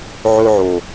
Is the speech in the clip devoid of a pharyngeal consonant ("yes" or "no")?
no